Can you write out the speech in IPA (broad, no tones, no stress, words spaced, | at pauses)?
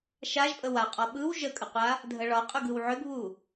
ʃaʒpʼə waqʼɔ ɓɯw ʒəkʼəqʷa | dʱəɭɒqʼʏɡ ɯwʕʏɡβu